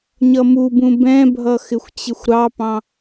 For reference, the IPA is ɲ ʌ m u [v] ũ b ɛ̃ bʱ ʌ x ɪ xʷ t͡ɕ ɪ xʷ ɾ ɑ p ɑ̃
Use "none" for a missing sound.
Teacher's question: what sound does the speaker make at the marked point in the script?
b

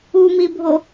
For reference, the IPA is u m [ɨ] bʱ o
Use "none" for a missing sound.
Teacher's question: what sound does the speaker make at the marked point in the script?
i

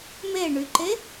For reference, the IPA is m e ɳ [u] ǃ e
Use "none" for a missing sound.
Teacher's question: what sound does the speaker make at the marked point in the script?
y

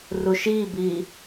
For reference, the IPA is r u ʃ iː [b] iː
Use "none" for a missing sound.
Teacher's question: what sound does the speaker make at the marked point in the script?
b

